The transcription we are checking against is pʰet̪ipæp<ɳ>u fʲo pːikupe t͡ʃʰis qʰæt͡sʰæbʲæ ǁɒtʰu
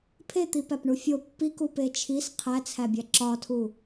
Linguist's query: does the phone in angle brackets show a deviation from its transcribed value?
no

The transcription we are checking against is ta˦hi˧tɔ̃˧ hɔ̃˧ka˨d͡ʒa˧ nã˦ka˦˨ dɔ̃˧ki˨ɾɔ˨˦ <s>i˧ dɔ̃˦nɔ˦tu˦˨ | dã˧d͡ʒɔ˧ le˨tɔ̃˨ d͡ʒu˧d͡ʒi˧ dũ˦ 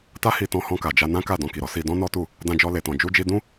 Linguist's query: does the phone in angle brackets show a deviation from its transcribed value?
no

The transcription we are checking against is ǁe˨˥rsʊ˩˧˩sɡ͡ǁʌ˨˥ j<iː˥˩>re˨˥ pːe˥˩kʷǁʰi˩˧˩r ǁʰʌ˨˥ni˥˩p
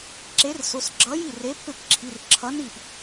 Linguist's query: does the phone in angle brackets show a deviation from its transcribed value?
yes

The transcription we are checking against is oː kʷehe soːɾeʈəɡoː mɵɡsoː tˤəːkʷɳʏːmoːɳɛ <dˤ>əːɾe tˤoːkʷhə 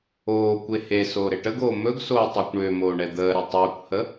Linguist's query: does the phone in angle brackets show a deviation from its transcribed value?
yes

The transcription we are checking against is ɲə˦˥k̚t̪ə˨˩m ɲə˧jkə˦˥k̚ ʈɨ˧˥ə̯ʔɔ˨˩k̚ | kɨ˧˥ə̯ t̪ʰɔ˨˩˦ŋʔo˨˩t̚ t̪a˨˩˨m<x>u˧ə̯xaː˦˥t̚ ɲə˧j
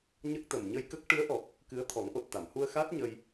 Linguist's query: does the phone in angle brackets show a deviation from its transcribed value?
yes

